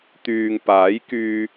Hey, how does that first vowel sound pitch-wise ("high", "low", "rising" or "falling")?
low